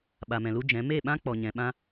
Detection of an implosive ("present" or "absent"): present